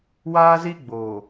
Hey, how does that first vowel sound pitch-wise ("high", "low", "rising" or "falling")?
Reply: high